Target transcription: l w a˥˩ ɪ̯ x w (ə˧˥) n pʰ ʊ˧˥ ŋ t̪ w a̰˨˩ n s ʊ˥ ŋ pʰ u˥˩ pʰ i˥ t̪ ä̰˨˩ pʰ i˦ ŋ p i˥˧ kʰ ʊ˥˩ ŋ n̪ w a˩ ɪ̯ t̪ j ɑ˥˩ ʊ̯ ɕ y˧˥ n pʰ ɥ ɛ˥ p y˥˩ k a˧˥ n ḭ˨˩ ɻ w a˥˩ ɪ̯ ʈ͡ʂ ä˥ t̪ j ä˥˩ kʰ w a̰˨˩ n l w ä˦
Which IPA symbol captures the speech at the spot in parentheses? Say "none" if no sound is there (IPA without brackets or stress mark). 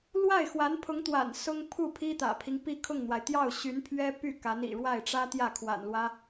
a˧˥